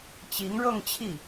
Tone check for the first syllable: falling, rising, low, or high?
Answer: rising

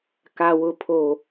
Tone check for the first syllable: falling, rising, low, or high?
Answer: high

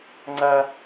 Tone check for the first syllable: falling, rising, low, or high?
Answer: high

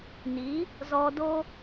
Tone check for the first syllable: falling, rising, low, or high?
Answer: rising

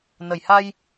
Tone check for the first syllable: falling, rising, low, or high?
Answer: low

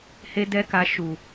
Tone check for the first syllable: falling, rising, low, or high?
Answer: high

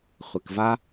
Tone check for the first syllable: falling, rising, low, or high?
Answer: low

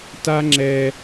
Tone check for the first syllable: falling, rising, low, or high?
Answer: high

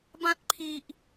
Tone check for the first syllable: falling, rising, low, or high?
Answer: high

